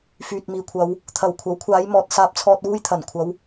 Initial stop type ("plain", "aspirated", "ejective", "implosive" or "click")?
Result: plain